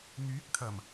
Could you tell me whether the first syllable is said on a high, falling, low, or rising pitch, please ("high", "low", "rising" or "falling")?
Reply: rising